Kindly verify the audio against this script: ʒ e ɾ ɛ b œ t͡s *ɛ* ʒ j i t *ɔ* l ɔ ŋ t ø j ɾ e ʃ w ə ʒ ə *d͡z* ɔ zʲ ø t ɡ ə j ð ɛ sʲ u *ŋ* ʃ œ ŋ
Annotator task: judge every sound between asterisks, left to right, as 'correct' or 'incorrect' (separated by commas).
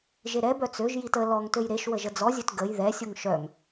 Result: incorrect, incorrect, correct, correct